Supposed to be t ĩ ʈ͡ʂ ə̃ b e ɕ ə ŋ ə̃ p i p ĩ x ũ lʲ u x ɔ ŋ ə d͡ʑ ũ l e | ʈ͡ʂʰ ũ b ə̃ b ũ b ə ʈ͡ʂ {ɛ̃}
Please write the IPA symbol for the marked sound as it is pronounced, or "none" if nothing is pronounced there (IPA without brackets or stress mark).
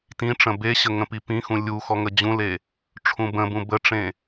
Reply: ẽ